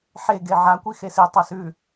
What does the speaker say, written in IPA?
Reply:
ħ e ɡ e ʕ a kʷ i x e s i tˤ a s ʉ

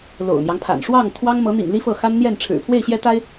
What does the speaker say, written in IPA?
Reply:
l o̰˨˩ ʊ̯ n̪ j ɑ˦ ŋ pʰ a̰˨˩ n ʂ w ɑ˥˩ ŋ t̪ʰ w ɑ˥ ŋ m ɤ˧˥ n̪ ḭ˨˩ ŋ l i˥ f ɤ˥˩ x a˥ n n̪ j ɛ˥˩ n ʈ͡ʂʰ ɻ̩˨˩ pʰ w e˥˩ ɪ̯ ɕ j ɛ˥ t̪ a˥ ɪ̯

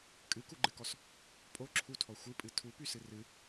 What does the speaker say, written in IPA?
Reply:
kʼ ɨ k u ɡ͡ǃ ɨ k ɔ s | pʼ o ǁʰ u tʰ ɔ xʷ ɨ pʼ ɨ tʰ u p y s ɨ r ɨ

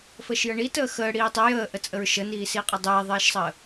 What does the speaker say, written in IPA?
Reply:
f əː ʃ j ə ɳ i t əː x əː ɽ iː tˤ e j əː ʔ ə t͡sʼ ə ɹ ʃ ə n iː s iː qʼ ɐ dˤ eː ðˤ eː ʃ sˤ əː

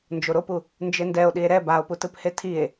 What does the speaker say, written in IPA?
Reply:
n d͡ʒ o ɾ o p u | n d͡ʒ e n d ɛ o̯ ɗ i e̯ ɾ ɛ b a o̯ p u t ɯ p h e tʰ i e̯

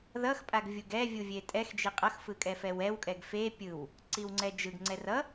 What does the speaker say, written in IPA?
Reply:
ð ʌ x pʼ a ɡ vʲ u ɡ ɛ vʲ u vʲ e tʼ ɛ x d͡ʒ i qʼ ʌ x f ɯ kʼ ɛ f ɛ w ɛ w kʼ ɛ ɡ f e pʲ ɯ w | ǀ i w ŋ͡ǀ ɛ d͡ʒ ɯ ɡ ŋ͡ǀ ɛ r ʌ

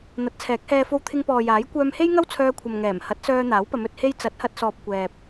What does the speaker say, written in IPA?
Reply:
n̪ ɐ˨˥ t̚ t͡sʰ ɛː˨˥ k̚ h ɛː˧ f o˧ w t̪ʰ ɪ˧ ŋ p ɔː˨ j aː˨˥ j kʷ œː˧ m h e˥ j ŋ ɐ˥ w t͡sʰ œː˧ kʷʰ ɐ˨ m ŋ ɛː˨˩ m h ɐ˨˥ t̚ s œː˧ n̪ aː˨˥ w p ɐ˨˧ m ɵ˨ t̚ h e˧ j t͡s ɐ˨˥ t̚ h ɐ˧ t̚ s ɔː˨ p̚ kʷ ɛː˨ p̚

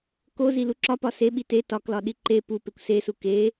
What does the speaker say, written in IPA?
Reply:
k o z i l u ǁ ɒ p ɒ s e ɓ i t e t ɒ k l ɒ ɗ i ǃ e p u p e kʷ s e s u k e

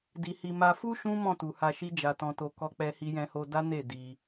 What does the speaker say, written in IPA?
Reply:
d i˨ h i˨ m a˨ f u˧ ʃ ũ˦ m ɔ̃˦˨ t u˨ h a˧ ʃ i˦ d͡ʒ a˧ t ɔ̃˧ t o˧ k ɔ˦ k͡p ɛ˦ h i˦ j ɛ̃˧ h o˧ d a˦ n e˦˨ d i˧

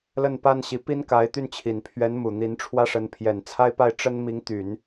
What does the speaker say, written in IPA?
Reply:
l ə˥˩ n p a˥ n ɕ i˧˥ p i˥ n k a˧˥ ɪ̯ t̪ y˥˩ n t͡ɕʰ i˨˩ n pʰ ɥ ɛ˧˥ n m u˨˩ n̪ i˧˥ n ʈ͡ʂʰ w ä˥ ʂ ə˧˥ n pʰ j ɛ˨˩ n t͡sʰ a˥ ɪ̯ p a˥˩ ɪ̯ ʈ͡ʂ ə˥ n m i˧˥ ŋ t̪ y˨˩˦ n

